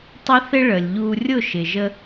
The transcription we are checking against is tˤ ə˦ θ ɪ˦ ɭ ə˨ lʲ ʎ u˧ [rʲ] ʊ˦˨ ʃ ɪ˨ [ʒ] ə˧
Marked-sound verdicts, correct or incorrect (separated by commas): correct, correct